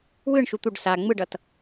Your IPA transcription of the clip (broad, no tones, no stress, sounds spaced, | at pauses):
w ɯ ɳ ʃ u t̪ u ɖ s a ŋ͡m ɯ ɖ ʌ t